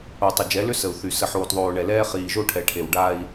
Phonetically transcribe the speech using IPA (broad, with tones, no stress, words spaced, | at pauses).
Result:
o˨tˤɪ˨d͡ʒɛ˨˦lʏ˦ sə˨u̯θy˨ sə˨ħoː˨tðˤoː˨ ɳɛ˨lɛː˦ χiː˨ʒo˦ʈʰɛ˨ʈʰe˨w ɖa˦i̯